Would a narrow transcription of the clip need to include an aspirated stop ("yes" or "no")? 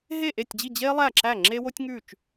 no